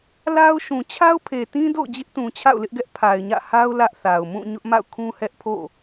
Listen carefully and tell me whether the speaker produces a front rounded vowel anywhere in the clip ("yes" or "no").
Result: no